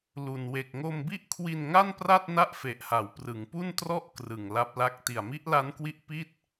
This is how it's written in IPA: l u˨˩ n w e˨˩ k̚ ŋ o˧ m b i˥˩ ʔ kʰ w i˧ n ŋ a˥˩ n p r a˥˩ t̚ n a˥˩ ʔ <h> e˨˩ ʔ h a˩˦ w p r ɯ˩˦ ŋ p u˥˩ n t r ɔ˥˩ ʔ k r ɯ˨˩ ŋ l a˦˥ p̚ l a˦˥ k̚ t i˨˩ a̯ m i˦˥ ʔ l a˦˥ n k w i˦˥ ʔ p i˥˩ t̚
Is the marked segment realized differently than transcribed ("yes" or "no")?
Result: yes